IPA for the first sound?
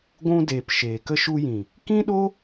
ɡʷ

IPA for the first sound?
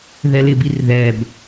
ð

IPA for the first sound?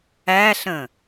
æ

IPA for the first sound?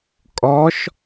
kʼ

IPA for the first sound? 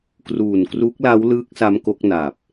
k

